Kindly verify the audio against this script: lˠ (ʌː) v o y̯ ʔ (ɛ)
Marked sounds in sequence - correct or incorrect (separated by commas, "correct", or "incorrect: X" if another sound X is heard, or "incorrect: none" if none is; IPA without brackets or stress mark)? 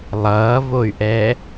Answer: correct, correct